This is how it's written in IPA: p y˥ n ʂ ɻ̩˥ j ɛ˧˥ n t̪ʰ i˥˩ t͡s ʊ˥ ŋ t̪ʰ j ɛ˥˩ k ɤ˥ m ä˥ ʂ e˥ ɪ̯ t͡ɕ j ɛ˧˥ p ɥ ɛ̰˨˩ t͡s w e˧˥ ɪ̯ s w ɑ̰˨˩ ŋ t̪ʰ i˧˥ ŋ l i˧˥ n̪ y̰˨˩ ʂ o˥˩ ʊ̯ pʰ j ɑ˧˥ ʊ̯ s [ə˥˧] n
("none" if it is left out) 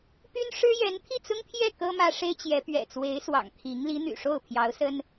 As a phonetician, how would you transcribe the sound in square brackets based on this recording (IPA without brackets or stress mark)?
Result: ə˥